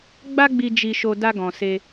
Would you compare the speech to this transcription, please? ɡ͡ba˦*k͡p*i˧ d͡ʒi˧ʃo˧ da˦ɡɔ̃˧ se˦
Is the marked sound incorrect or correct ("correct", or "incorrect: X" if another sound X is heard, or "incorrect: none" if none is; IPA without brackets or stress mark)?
incorrect: ɡ͡b